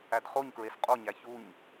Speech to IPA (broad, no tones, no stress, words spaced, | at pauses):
ædχoɲkɹes qʼoɲæ çuɲ